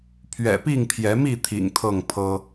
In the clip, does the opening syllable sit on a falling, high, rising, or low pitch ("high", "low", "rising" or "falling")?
low